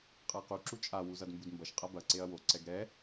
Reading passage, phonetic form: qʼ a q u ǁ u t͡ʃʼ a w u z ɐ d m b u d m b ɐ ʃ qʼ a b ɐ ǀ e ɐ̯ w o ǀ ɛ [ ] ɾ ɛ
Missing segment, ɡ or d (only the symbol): ɡ